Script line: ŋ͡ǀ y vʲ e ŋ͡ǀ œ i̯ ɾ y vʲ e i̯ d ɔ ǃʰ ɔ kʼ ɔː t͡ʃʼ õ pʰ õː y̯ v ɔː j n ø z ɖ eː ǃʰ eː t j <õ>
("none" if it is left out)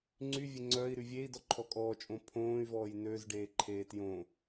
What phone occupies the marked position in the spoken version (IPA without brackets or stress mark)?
õ